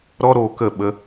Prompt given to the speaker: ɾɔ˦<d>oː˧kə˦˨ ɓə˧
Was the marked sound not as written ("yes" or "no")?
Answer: yes